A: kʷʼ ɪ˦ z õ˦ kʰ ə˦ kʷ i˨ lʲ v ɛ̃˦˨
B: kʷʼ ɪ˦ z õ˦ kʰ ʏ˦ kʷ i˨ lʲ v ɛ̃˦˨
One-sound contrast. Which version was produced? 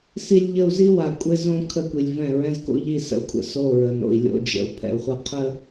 A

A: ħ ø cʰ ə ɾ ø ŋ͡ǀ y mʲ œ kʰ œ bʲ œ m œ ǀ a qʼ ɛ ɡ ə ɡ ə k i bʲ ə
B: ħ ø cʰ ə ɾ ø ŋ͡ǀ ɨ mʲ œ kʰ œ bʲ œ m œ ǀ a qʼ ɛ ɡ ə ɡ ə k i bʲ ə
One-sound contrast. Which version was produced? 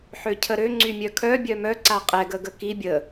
A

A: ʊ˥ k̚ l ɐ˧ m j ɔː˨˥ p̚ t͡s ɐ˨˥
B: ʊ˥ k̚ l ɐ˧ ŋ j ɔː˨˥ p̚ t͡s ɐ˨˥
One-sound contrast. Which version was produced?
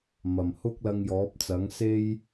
B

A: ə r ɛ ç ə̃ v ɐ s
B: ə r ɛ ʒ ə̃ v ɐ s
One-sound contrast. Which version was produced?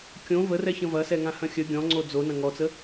A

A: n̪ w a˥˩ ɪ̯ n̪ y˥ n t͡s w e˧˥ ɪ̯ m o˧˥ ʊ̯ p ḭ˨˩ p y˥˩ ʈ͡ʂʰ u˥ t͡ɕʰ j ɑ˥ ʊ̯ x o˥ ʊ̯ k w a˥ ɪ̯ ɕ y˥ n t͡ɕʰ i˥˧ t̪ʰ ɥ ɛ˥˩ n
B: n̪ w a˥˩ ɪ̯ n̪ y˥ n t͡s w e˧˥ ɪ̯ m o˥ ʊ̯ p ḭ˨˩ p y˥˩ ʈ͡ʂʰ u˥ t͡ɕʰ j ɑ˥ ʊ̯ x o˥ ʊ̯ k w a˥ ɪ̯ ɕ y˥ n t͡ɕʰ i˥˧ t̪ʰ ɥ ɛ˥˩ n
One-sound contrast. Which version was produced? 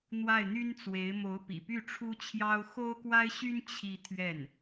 A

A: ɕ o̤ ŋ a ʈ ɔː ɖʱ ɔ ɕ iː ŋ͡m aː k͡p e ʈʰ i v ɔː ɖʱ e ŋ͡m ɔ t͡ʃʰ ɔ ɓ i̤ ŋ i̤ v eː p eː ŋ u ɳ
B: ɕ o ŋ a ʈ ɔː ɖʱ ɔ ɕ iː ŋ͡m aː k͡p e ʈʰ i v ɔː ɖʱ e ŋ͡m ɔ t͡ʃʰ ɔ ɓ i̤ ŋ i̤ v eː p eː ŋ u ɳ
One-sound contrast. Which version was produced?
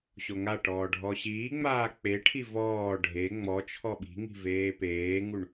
B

